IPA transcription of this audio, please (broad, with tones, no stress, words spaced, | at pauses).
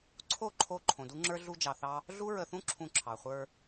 ǀʰo˦˨ǃʰo˧ ǃʰõ˨du˦ŋ͡ǁə˞˦ ɮu˦d͡ʒɑ˧θɑ˦ | ɮu˦ɹə˧θũ˦ ǁʰũ˧ǁʰɑ˨ χʷə˞˧